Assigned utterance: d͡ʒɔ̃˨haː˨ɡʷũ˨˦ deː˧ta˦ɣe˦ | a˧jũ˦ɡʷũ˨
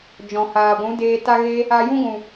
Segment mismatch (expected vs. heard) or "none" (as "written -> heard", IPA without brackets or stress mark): none